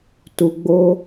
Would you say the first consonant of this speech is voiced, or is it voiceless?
voiceless